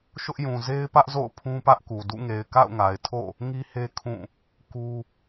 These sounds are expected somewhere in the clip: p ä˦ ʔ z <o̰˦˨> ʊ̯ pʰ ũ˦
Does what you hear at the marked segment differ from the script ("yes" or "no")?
no